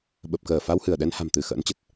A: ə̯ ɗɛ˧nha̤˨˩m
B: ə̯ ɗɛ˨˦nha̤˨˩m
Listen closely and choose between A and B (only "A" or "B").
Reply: A